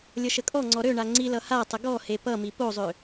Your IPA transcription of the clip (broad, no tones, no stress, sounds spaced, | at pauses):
lʲ ʌ ʃ ə kʼ ɔ ŋ͡ǀ ɔ ɾ ø ɳ a ŋ͡ǀ i l ʌ h a tˤ ə ɡ ɔ h e p ʌ m i p o zˤ ø